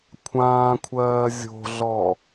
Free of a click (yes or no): yes